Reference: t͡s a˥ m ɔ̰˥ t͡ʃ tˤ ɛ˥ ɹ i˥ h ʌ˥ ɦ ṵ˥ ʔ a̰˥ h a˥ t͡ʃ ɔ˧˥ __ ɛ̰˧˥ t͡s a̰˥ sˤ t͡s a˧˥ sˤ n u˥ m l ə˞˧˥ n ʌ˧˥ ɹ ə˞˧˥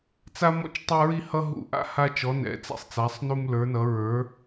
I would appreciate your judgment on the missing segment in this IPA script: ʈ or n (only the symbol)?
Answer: n